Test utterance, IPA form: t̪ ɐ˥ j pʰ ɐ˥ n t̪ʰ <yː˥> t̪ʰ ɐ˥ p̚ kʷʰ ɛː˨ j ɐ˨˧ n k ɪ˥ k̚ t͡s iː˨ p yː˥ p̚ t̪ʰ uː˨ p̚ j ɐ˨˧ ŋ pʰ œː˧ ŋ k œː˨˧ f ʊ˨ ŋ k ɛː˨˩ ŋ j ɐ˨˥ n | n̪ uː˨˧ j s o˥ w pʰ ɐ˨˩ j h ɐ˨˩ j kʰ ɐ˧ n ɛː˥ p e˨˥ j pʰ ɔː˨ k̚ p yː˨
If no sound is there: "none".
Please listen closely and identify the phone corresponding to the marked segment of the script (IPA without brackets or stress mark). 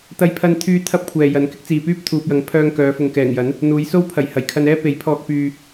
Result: yː˥